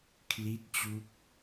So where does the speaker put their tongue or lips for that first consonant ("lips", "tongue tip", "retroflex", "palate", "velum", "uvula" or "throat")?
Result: velum